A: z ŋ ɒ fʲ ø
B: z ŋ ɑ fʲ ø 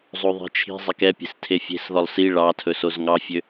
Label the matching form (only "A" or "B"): B